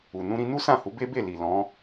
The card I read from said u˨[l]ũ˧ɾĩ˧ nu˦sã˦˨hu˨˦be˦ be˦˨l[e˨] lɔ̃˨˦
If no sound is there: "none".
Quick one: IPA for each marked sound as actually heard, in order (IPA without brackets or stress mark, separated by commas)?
n, i˨